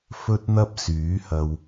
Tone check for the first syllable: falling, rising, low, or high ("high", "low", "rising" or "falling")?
high